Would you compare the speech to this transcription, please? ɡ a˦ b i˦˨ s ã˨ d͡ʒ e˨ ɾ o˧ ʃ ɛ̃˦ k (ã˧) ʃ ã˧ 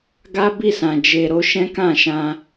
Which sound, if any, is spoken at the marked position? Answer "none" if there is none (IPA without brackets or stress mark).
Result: ã˦˨